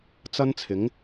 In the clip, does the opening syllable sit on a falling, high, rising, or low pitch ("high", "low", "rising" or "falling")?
high